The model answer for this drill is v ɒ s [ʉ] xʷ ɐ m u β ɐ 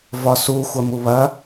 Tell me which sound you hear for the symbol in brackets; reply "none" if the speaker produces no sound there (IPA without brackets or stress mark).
u